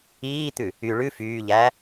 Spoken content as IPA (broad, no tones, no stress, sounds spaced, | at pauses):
iː t̪ ʉ | y ɭ ʉ f yː ʎ æː